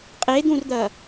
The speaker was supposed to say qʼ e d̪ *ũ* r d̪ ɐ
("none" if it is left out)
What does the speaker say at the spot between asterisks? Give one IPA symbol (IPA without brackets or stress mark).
ũ